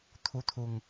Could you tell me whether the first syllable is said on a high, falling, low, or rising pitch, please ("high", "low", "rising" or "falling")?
rising